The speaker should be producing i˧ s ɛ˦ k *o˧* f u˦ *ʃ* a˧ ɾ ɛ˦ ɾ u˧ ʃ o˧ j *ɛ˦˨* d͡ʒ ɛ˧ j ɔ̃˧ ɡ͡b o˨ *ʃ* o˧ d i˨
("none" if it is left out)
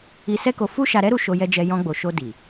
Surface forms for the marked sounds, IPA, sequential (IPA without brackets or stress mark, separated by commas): o˧, ʃ, ɛ˧, ʃ